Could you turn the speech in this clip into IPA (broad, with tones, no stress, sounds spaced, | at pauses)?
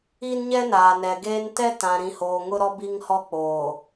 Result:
i˦ n ɲ ɛ˦ n aː˨ n ɛ˨ ɡ eː˦ n t ɛ˦ t ã˨ ɾ ĩ˨ h oː˨ ŋ ʊ˦ ɾ ɔ˦ b i˦ ŋ h ɔ˦ k͡p oː˨